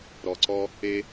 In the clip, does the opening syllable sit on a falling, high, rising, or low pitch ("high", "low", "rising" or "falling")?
low